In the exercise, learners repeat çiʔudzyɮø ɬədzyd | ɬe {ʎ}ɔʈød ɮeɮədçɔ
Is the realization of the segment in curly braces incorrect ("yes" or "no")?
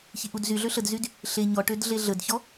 yes